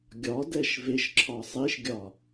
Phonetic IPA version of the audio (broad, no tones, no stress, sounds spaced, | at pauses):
ɡʲ ɒ d ɛ ʃ v e ʃ ǁʰ ɒ sˤ i ʃ ɡʲ ɒ